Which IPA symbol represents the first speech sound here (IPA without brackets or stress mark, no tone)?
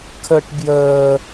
kʰ